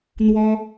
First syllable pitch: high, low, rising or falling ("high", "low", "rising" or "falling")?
high